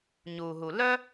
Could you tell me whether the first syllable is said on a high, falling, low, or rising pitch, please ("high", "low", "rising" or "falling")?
low